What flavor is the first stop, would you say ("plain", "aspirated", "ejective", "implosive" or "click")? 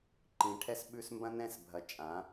click